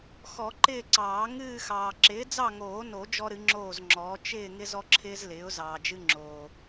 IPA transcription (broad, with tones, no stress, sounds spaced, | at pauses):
x ɔ˨˩˦ ǃ ɪː˦˨ ǀ ɑː˨˩˦ ŋ ɨː˦˨ x ɑː˨ ǁ ɪː˩˥ d͡z ɑ˦˨ ŋ oː˨˩˦ n o˨˩˦ d͡ʒ ɔ˦ ɾ ɨ˩˥ ŋ͡ǁ oː˦˨ z ŋ͡ǁ ɔː˩˥ t͡ʃ ɪː˦˨ ŋ ɪ˦ z ɔ˦ ǁʰ ɪː˦ z l ɪː˩˥ ʊ̯ z ɑː˨ d͡ʒ ɨ˦ ŋ͡ǁ oː˨